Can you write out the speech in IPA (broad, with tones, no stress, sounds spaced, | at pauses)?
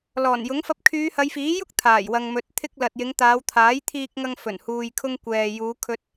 l ɔː˨˩ n j ʊ˨˥ ŋ f ɐ˧ p̚ kʰ yː˨˧ h ɐ˨˧ j f iː˨˥ j ʊ˥ k̚ t̪ʰ aː˨˩ j w ɐ˨ ŋ m ɵ˨˥ t̚ t̪ʰ ɪ˧ k̚ l ɐ˨ t̚ j ɪ˨˧ ŋ t̪ aː˨˧ w t̪ʰ aː˨˥ j t̪ʰ iː˧ k̚ ŋ ɐ˧ ŋ f ɵ˨˩ n h uː˨ j kʰ ʊ˧ ŋ kʷ ɛː˨ j uː˨˧ kʰ ɵ˧ t̚